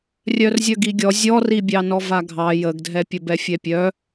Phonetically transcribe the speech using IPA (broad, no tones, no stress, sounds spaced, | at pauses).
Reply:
rʲ œ r zʲ œ ɡ i ɡʲ ɔ zʲ ɔ r i bʲ ɑ n ɔ v a ɡʱ ɑ j ə ɡ dʱ ɛ pʲ ə b ɛ fʲ ɛ pʲ œ